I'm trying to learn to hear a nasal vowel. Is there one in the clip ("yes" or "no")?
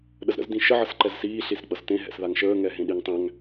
yes